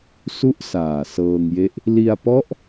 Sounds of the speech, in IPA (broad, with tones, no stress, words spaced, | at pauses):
su˥˩ʔ saː˨˩sɤː˧ŋje˦˥ʔ | li˧a̯pɔ˦˥ʔ